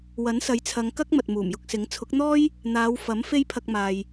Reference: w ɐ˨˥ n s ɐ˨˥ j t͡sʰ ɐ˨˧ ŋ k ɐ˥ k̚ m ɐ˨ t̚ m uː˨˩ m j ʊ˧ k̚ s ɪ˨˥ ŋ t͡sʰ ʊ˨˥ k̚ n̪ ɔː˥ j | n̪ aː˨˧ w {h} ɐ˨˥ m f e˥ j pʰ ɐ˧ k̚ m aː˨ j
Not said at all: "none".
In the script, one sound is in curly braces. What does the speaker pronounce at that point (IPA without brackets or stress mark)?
f